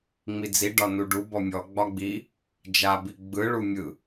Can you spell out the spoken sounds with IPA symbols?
ŋ͡mid͡zi ɖɒnuɖu bɔmʲɔ ɡ͡bɒɡ͡bi | d͡ʒa biɡ͡bɯ ɭumʲɯ

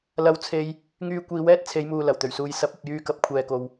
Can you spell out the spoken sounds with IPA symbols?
lɐ˧wt͡sʰe˧j | ŋyː˧ kʷiː˨˧wɛː˥t̚t͡sʰe˨˧jmuː˨ lɐ˨˩wt̪ɵ˨˩ɥsuː˨j sɐ˨˥p̚ɐ˨p̚ jyː˧kɐ˨˥p̚kʷʰɛː˨ko˨w

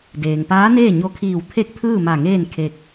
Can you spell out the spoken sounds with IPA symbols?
deː˩ŋpaː˧˥neː˥˨ ɲo˧kʰiː˧˩wt̪ʰe˥˨k̚t̪ʰɯː˥˨ ma˧˩ŋeː˥˨n kʰe˧k̚

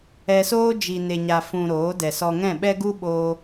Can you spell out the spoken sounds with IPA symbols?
ɛ˧soː˦ d͡ʒi˨ne˨ɲa˨ fũ˨ ɾoː˨˦dɛ˨sɔ˧ŋɛ̃˦˨ ɓɛ˦ɡu˦ɓoː˧

